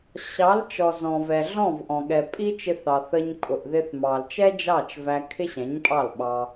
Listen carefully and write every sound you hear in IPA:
ɕ ɑ˨˦ l t͡ʃ ɔ˨ z ɔ̃˨ v ɛ˨ ɮ ɔ̃˦˨ v ʔ ɔ̃˨ ɠ ɛ˨ pʼ i˦ t͡ʃ ɪ˧ θ ɑ˨ θ ə˧ ɲ kʼ ʊ˨ ʔ ð ɪ˧ θ m ɑ˨ l t͡ʃ ɛ˦ d͡ʒ ɑ˦˨ t͡ʃ v æ˧ kʰ ɪ˦ ɕ ɛ̃˨˦ ɲ pʼ ɑ˦˨ l ɓ ɑ˧

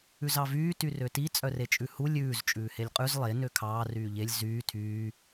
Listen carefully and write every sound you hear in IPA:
ʉ z ɑ v yː t y r ø t i t͡sʼ œ r e t͡ʃʼ ʉ h u lʲ ʉː z t͡ʃʼ ʉː h e lʲ qʼ ʉ z lˠ e n ø kʰ ɑː r yː ʎ e lʲ z yː tʰ yː

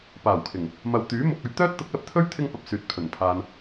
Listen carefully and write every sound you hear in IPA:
p aː˨˩ w kʰ ɪ˨˩ ŋ | m ɐ˨ w t̪ yː˨˥ m ʊ˨ k̚ ɵ˧ ɥ t̪ œː˥ t̚ t̪ ʊ˨˥ k̚ l ɐ˨ p̚ t̪ʰ ɵ˥ ɥ t̪ʰ ɪ˥ ŋ p ɐ˨ p̚ s yː˨˥ t̚ pʰ ɵ˨˩ n pʰ aː˧ n

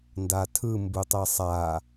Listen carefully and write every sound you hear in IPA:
n d a tʰ ɯ m b u tˤ ɛ sˤ a

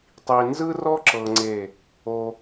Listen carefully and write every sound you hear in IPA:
tˤ i˨ n z ɯ˦ r ɔ˦ ǁ ɤ˧ ŋ͡ǀ e˦˨ | o˧

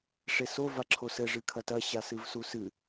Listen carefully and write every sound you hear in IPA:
ʂ e s o v a ǁʰ o s ɘ ʐ ɨ kʰ ɐ t ɐ ɕ a s ɨ v s u s ɨ

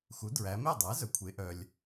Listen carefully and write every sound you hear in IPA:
x u˩˥ d ɹ æ˩˧ m e˥˩ dˤ æ˩˥ z œ˩ kʷʰ e˩˧ ʔ œ˩ lʲ

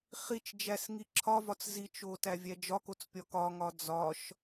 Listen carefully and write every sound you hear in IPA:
χ i t͡ʃ d͡ʒ æ s ŋ i ǁʰ ɒ v ɒ t͡s z i t͡ʃ o t æ vʲ æ d͡ʒ ɒ k o t͡s pʲ ɒ k ɒ ŋ ɒ d͡z ɒ ʃ

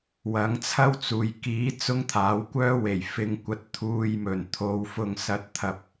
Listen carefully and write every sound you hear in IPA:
w ɐ˨˥ ŋ t͡sʰ ɐ˥ w t͡s uː˨ j k iː˨˥ t͡s ʊ˥ ŋ t̪ʰ aː˨˥ w kʷ œː˥ w e˨˩ j f ɪ˨ ŋ kʷ ɐ˧ t̚ t̪ʰ uː˨ j m ɵ˨˩ n t̪ʰ o˨ w f ʊ˨ ŋ s ɐ˨˥ t̚ t̪ʰ ɐ˨ p̚

